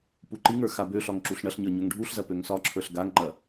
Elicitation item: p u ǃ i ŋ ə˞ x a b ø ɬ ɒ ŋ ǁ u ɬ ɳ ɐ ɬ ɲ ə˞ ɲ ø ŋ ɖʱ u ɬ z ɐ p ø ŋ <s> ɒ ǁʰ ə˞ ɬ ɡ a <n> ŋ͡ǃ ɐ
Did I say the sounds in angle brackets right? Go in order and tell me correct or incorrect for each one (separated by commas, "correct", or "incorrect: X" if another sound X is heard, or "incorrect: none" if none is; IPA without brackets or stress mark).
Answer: correct, incorrect: ŋ